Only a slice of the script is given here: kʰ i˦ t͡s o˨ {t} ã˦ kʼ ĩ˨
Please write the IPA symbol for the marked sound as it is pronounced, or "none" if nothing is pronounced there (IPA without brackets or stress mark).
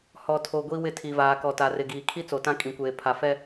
t